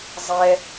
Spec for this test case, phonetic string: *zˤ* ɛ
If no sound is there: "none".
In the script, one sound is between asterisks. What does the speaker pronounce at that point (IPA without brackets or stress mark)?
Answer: zˤ